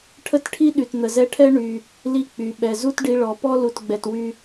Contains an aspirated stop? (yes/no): yes